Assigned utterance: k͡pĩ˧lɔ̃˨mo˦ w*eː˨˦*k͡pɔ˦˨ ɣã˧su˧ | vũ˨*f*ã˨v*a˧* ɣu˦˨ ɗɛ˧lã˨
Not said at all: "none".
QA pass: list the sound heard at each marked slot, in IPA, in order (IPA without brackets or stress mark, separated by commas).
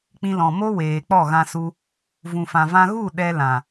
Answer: eː˨, f, ã˧